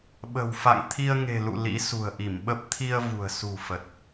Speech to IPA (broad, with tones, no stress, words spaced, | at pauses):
ɓə̤˨˩wfa̰˧˨ŋ t̪ʰi˧ə̯ŋe̤˨˩lṵ˧˨ lḭ˧˥sṳ˨˩ə̯ʔi˧˩mɓə˦˥p̚ t̪ʰi˧ə̯ vṳ˨˩ə̯sṳ˨˩fə˨˩t̚